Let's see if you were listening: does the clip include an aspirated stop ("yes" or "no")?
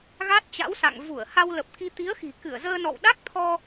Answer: yes